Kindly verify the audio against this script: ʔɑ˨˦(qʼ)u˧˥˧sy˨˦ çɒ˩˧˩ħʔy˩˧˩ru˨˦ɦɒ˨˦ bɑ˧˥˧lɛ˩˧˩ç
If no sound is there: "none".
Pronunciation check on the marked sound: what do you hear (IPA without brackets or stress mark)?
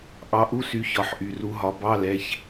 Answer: ʔ